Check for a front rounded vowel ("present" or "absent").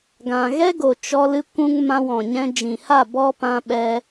absent